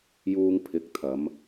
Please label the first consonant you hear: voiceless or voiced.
voiced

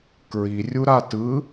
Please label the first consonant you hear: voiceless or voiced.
voiceless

